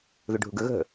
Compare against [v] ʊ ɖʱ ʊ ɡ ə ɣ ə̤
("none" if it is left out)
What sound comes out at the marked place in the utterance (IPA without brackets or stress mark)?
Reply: ð